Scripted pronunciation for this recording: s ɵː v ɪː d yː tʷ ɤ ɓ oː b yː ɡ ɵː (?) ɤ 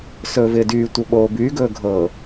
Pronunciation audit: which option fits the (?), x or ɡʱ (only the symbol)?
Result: ɡʱ